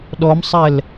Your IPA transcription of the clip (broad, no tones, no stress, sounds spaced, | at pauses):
ɗ ɔ m sˤ ɛ l